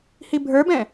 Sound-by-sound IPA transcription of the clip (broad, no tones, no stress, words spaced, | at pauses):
hibʱə˞bɛ̃